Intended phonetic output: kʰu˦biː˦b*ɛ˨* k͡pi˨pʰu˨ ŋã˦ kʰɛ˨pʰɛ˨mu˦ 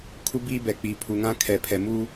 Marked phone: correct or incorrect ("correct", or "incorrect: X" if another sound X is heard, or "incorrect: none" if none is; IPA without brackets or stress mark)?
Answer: correct